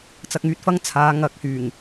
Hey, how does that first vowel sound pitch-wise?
low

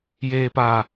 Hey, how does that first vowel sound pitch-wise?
low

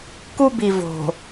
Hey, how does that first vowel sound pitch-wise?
high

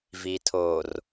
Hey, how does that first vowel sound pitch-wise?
low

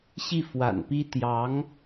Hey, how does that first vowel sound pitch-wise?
falling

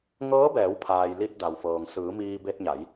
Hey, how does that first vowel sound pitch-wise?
rising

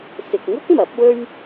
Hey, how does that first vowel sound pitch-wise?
low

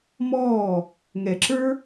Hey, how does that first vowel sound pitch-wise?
falling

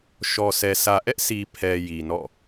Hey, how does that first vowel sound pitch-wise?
low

